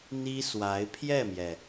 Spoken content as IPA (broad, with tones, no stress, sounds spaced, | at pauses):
n̪ i˥ s w a˧˥ ɪ̯ pʰ j ɛ˥˩ m j ɛ˩